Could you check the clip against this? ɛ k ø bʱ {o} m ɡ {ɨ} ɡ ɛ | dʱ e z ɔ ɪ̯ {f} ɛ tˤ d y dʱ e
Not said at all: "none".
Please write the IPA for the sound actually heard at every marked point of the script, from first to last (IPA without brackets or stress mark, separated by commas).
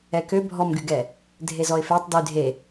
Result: ɔ, y, f